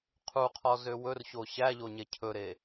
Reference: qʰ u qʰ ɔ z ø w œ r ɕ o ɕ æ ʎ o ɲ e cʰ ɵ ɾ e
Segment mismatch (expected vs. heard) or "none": œ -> ɵ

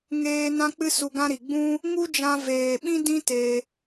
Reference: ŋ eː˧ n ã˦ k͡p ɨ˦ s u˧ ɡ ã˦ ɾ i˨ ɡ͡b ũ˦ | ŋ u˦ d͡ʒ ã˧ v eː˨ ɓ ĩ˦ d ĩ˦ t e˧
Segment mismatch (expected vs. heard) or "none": none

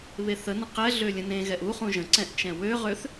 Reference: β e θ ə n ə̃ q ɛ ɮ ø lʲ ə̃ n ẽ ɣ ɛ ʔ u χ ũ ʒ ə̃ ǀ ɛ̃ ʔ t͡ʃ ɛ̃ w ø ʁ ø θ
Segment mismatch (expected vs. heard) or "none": none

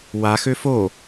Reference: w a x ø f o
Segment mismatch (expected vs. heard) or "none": none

